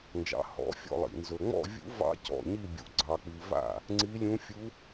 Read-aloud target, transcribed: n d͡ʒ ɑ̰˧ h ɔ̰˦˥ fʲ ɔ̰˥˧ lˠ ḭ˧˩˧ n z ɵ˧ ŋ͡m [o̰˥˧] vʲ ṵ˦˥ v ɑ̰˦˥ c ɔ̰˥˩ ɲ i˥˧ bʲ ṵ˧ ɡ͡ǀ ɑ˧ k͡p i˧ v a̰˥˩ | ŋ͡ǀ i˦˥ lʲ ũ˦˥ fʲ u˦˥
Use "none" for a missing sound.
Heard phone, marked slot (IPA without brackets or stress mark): ɔ̰˥˧